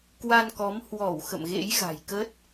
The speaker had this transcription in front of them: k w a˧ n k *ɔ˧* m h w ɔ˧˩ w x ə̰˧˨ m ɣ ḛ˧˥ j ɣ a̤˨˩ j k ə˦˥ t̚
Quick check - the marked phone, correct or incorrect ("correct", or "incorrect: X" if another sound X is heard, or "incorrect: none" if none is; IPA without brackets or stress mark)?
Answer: incorrect: ɔ˨˦